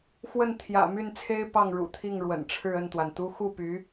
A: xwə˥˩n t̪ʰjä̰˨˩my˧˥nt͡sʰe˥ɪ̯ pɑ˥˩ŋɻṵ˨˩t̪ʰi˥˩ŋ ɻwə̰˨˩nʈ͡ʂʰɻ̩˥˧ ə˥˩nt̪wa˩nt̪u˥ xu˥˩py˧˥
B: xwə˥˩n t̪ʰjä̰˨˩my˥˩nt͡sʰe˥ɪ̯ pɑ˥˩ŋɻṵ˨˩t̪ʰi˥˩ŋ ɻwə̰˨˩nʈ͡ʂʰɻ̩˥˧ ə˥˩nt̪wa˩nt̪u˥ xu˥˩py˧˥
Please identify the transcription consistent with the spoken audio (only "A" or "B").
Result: B